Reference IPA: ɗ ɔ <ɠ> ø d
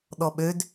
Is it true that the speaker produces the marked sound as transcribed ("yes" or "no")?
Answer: no